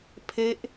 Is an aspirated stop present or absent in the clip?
present